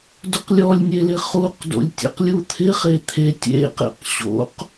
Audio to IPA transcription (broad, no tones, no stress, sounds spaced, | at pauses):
d ʊ q lʲ ɔ lʲ nʲ e l ɪ χ u q d o̰ lʲ tʲ ḛ q lʲ u t̪ʰ ɪ χ e t̪ʰ e tʲ ḛ q ḛ q ɕ o̰ q